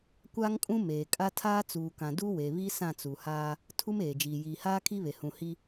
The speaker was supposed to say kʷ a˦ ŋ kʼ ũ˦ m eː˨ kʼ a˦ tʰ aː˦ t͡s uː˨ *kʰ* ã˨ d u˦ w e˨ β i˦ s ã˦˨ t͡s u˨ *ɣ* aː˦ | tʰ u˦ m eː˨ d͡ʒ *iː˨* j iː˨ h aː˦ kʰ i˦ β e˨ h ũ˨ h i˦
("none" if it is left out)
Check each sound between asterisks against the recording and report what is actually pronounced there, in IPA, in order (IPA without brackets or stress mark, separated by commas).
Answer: k, h, iː˨